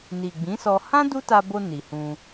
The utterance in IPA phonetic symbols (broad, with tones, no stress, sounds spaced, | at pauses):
n i˨ ɡ͡b ĩ˨˦ s ɔ˧ h ã˦ d u˦ t a˧ b o˧ n i˨ h ũ˧